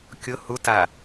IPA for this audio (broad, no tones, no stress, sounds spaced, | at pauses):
kʲ ʊ h u t a